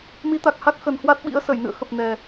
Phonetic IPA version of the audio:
m i˨˦ t̪ a˨˩ k̚ h a˦˥ k̚ x ə˨˩ n h w a˦˥ t̚ ɓ ḭ˧˥ ə̯ s ə˧˩ j n ɨ̰˧˨ ə̯ x ə˨˩ p̚ n ɛ˨˩

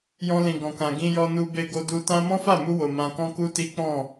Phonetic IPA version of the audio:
j ɔ̃˧ l ĩ˨ ɡ ɔ̃˨ k ã˨ ɡ ĩ˧ j ɔ˧ n u˧ b e˧ ɡ o˧ d u˧ t ã˦ m ɔ̃˦ f a˦˨ m u˧ w o˨ m ã˧ k ɔ̃˦ k u˦ t i˦ k͡p ɔ̃˦˨

